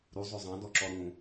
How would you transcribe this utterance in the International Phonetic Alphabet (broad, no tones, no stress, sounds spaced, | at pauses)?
ɾ u zˤ o zˤ ɑ̃ d ɔ ǁ ɔ ɾ ũ